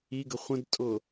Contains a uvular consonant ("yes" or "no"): yes